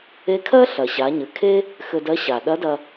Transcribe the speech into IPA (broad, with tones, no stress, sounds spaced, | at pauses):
e˧˥ kʰ ɜ˥ ɬ ɐ˩ ɕ a˩˧ ɲ ɘ˩ kʰ e˥ | x ɘ˧ d ɜ˧˥ ɕ a˩ ɗ ɐ˧˥ d ɐ˧